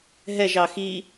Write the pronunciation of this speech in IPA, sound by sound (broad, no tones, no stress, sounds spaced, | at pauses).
ɦ ɛ ʒ ɑ x i